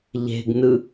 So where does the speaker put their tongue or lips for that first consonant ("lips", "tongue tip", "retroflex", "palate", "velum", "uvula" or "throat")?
palate